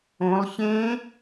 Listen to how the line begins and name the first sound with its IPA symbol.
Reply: õ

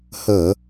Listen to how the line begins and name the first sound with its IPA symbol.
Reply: h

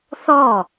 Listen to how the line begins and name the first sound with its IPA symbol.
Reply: θ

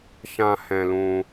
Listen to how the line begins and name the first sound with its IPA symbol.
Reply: ʃ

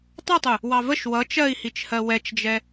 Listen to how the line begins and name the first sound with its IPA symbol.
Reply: tˤ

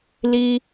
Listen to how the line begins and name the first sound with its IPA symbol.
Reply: l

